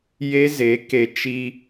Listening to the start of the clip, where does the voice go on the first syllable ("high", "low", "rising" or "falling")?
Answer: high